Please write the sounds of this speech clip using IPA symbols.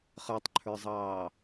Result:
χ ə˞ tˤ ǃʰ ə˞ zˤ ɑː

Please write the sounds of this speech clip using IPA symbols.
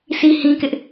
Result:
sʰ i˦ h ĩ˦ k ɪ˦ ʔ

